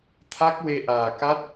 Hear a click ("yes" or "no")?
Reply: no